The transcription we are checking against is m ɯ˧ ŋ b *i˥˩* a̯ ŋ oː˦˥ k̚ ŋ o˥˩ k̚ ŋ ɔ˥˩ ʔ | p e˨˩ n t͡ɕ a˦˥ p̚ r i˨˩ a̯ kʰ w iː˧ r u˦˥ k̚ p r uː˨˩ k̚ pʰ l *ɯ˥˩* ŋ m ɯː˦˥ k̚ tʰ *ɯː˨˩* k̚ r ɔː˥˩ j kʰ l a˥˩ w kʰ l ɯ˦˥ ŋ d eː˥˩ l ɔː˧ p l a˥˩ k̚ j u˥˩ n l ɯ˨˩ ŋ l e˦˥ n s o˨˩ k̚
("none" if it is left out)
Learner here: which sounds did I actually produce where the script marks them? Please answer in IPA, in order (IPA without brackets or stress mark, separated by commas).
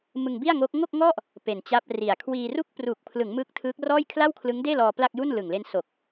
i˥˩, ɯ˩˦, ɯː˦˥